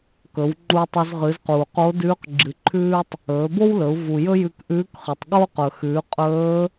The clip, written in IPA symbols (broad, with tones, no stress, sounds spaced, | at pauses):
k ɵ˩˧ w ŋ͡ǃ u˧ tˤ o˧ z ʁ ɨ˩˧ z q uː˩ q o˧˥ d ʉː˧˥ q ɡ͡ǁ ɨ˩ ǃʰ ʉː˥ tˤ | ɵː˩˧ b o˥ w l ɵ˩˧ u̯ v u˩ j ɵ˥ j ʉ˧ k ʔ ʉː˧˥ k χ ɨ˩ tˤ ɠ o˥ q ɵ˩ x ʉː˩˧ qʼ ɵː˧˥